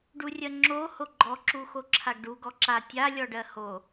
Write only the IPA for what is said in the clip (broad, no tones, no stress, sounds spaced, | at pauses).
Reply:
ɖ u rʲ ɜ ŋ͡ǁ o h o ɡ͡ǃ ɔ ǁ u x o ǁʰ a ɡ ɖ u ɡ ɔ ǁ a tʲ a lʲ ɔ ɖ ɜ h o